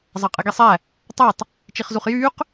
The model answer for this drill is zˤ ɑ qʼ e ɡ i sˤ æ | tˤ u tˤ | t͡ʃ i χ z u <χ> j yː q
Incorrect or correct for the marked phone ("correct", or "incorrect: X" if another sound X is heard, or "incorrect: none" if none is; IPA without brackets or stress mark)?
correct